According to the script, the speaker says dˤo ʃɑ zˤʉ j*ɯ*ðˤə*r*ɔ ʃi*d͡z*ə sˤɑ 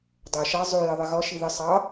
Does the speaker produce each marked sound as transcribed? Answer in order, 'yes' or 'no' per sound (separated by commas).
no, no, no